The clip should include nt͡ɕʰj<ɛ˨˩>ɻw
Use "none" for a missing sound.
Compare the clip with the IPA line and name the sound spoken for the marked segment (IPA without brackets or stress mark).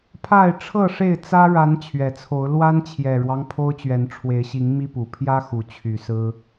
ɛ˨˩